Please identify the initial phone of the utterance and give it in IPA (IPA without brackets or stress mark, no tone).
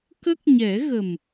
k